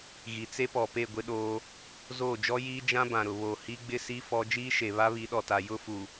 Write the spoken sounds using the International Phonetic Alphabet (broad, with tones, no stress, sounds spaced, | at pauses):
ɣ i˨ t͡s e˦ p ɔ˨ p e˦˨ ɡʷ ɪ˦ ɗ oː˦ | z oː˦˨ d͡ʒ ɔ˦ j iː˦ d͡ʒ ã˦ b ã˨ ɾ ʊ˨ β o˨ h i˦ ɡ͡b ɪ˦ s i˦ f ɔ˦ d͡ʒ iː˦ ʃ e˨ β a˦ β i˨˦ ɗ ɔ˨ t a˨ j ʊ˦ f u˨